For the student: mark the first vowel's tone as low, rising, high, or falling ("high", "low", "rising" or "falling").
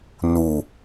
low